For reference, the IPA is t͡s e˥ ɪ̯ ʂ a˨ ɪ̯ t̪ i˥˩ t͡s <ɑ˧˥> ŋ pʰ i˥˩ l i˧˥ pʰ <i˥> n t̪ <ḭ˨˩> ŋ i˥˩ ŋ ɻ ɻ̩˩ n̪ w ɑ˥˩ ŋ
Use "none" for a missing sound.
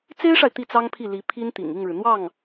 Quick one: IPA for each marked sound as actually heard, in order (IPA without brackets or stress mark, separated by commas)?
ɑ˥, i˥, ḭ˨˩